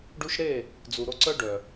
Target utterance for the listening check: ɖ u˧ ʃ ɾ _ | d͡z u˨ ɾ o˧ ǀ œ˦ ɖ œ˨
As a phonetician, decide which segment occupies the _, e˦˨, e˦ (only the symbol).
e˦˨